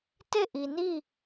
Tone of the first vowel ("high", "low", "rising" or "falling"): falling